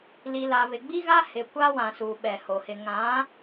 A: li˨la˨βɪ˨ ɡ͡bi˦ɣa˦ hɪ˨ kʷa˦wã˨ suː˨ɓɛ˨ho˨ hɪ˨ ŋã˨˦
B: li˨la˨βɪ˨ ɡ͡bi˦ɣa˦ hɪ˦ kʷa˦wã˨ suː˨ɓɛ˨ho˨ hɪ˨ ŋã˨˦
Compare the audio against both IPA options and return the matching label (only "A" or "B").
A